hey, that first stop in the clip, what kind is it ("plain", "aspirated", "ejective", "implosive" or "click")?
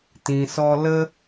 plain